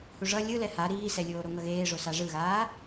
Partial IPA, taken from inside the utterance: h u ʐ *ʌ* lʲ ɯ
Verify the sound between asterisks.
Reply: correct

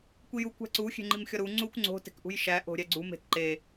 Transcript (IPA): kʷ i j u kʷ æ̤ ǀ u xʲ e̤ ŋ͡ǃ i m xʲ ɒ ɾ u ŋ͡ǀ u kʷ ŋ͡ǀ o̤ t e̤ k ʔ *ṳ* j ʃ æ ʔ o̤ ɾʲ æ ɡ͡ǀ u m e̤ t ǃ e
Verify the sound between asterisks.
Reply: correct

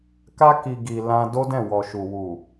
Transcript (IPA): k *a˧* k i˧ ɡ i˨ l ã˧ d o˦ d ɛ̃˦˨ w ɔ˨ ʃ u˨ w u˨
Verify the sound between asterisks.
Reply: incorrect: a˦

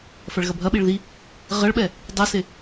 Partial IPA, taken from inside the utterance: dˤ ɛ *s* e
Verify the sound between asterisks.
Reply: correct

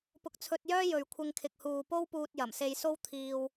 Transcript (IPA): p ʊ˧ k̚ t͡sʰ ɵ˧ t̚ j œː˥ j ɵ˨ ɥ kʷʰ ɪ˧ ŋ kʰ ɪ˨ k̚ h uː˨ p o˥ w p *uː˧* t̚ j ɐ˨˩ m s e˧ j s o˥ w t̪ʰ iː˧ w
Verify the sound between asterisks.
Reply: correct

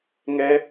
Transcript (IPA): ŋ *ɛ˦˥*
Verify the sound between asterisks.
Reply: correct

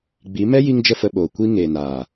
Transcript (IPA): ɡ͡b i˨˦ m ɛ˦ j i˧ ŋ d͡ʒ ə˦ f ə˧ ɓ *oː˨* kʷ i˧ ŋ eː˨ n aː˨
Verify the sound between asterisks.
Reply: correct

